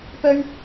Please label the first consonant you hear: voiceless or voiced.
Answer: voiceless